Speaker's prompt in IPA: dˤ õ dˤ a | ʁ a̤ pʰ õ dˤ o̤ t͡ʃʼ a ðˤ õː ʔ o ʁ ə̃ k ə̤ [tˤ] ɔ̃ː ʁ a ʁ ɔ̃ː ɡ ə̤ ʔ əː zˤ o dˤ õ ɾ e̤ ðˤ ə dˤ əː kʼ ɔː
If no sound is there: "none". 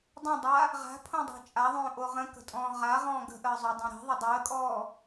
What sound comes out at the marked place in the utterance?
tʼ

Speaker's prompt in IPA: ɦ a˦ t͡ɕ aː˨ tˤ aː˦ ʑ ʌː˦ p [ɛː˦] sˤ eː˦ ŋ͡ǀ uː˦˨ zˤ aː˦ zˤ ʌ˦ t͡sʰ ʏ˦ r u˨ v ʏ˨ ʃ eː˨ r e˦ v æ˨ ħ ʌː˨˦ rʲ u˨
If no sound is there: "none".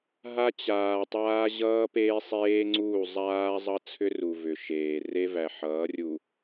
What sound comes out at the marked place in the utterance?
eː˦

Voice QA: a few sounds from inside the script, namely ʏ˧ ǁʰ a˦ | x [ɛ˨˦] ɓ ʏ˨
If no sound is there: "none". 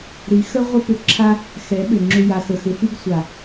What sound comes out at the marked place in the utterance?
ɛ˨˦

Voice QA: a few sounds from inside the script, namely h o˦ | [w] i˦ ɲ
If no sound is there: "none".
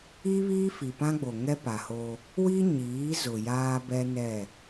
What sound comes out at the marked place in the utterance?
w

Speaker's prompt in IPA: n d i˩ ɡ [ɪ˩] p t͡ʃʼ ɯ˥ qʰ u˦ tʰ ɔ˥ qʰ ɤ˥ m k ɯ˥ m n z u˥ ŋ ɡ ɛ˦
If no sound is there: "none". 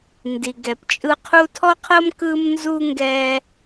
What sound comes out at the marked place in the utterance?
ɛ˩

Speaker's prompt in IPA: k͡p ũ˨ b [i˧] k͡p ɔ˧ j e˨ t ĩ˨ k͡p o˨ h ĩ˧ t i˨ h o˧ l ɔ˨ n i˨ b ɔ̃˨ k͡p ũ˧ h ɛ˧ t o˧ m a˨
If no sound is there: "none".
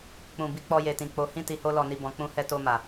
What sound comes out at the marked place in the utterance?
i˧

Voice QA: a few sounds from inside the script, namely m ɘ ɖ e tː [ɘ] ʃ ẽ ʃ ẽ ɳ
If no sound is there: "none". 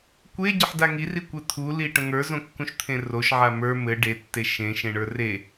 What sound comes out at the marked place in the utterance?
e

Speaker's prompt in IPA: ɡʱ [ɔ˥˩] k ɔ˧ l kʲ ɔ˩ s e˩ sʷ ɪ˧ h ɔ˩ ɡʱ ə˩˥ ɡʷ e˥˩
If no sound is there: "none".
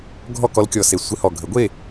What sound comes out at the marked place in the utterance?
ɔ˥˩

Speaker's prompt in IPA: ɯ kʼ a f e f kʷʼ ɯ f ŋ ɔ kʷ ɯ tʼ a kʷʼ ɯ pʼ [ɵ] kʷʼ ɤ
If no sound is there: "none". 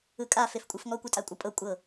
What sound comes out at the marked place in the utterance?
ɤ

